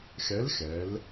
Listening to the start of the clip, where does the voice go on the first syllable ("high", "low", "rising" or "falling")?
rising